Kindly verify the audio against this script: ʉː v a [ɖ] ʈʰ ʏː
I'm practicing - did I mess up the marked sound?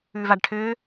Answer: no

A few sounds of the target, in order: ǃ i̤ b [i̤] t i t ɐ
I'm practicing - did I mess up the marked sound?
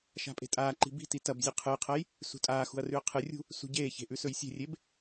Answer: no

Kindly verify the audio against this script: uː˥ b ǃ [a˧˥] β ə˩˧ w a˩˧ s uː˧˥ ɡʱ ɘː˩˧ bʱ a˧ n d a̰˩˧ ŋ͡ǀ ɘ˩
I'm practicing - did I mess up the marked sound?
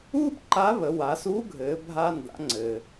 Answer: no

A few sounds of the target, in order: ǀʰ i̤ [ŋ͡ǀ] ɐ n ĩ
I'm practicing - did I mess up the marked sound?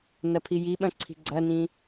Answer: yes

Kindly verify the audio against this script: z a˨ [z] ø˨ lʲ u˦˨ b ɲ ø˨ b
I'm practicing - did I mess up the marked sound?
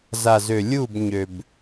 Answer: no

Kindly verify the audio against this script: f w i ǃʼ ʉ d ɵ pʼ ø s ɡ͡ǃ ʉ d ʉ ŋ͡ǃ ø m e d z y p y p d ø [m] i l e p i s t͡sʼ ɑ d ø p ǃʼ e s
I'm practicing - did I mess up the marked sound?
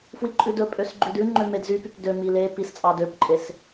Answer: no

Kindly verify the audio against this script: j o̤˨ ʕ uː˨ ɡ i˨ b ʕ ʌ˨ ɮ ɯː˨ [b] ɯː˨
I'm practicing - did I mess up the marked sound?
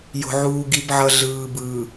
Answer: no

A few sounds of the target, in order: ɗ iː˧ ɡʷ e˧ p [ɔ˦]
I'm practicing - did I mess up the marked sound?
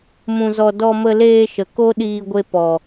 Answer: yes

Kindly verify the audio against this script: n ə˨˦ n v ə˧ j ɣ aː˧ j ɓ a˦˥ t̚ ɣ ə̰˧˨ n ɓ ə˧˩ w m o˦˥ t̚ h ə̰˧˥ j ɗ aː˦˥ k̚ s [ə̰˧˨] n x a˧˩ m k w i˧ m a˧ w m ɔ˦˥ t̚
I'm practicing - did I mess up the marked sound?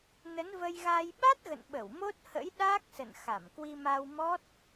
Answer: no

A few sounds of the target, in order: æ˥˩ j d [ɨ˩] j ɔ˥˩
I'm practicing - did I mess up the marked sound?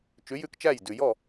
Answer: yes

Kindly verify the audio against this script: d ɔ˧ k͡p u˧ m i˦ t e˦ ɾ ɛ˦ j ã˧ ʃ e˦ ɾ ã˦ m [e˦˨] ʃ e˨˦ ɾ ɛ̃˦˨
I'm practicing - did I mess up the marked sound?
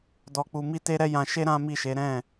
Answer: yes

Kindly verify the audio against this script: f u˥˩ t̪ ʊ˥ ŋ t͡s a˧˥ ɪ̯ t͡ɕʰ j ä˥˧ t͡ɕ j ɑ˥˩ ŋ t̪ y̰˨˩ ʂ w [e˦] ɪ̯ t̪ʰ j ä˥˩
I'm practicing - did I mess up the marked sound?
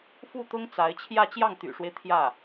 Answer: no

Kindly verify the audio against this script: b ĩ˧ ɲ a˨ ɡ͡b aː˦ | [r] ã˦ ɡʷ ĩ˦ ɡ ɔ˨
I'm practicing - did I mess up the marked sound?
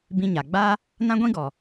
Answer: yes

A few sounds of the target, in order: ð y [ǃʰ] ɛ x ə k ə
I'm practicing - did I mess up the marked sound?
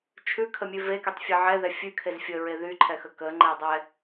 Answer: no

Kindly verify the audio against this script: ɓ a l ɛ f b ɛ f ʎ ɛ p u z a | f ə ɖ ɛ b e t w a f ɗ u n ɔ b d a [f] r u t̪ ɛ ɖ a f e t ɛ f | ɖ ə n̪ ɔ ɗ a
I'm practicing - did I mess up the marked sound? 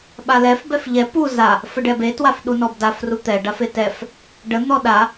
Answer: no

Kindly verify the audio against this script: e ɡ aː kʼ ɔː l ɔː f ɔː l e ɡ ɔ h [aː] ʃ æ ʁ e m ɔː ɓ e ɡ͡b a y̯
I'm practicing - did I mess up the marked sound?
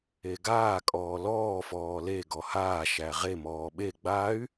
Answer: no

